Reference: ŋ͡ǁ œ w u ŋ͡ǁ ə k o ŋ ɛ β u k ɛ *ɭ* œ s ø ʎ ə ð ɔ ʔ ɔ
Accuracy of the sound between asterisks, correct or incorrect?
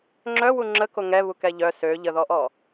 incorrect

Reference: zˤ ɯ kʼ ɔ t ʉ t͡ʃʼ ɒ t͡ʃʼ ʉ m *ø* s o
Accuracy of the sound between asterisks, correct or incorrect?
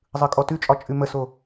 incorrect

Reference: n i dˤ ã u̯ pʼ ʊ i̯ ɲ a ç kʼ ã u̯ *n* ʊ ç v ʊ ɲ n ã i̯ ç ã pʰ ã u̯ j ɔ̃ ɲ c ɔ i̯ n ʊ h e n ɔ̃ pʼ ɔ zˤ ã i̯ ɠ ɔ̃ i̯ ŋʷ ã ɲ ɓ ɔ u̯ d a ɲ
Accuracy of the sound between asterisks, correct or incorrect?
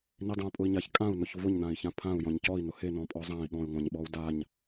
correct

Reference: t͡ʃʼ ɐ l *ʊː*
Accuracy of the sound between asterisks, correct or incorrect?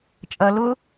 incorrect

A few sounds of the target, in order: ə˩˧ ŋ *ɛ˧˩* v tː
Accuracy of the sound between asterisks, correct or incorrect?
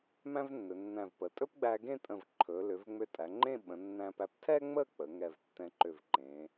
correct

